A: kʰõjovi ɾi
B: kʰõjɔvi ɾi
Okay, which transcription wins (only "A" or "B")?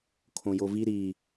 A